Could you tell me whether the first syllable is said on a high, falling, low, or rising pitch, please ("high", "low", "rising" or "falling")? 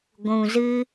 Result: low